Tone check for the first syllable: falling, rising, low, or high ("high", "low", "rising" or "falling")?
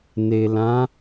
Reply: low